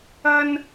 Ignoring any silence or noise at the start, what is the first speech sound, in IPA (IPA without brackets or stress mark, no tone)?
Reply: ɐ